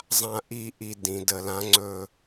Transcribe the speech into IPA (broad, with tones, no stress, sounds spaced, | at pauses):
zˤ ã˦˨ ʔ i˦˨ ʔ i˦˨ d ĩ˩˧ d ə˧˩˧ l ã˧˥ ŋ͡ǀ ɵ˦˨